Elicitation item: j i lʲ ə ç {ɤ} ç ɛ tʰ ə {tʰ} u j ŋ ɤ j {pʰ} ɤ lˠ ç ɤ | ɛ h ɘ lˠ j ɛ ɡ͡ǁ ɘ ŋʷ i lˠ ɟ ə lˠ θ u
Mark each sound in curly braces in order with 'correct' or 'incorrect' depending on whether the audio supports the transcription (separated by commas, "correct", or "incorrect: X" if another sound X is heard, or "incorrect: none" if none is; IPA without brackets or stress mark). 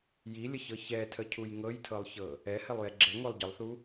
correct, incorrect: cʰ, incorrect: tʰ